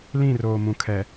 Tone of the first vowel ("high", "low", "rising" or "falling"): falling